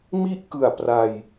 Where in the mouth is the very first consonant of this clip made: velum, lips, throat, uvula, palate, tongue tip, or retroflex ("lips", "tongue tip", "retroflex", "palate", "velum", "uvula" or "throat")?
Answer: lips